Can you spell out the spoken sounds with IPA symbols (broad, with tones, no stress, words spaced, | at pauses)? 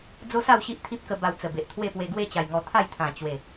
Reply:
d͡zo˦sa˥˧wɕi˦ʔ t̪ʰi˦p̚kə˧ ba˧wt͡sə˨˩ be˨ʔt̪ʰwe˥˧pwe˧ ɡwe˥˧t͡ɕa˨˩jŋɔ˧ t̪ʰa˥˧jt̪ʰã˨˩ t͡ɕwe˨˩